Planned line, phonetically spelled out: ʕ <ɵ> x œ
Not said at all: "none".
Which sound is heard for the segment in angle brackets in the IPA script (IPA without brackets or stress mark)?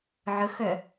ɵ